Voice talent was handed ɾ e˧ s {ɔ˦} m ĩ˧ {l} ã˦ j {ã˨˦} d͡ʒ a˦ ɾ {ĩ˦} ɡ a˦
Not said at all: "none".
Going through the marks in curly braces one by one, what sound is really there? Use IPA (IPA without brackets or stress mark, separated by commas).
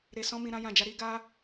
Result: ɔ̃˦, ɾ, ã˧, i˦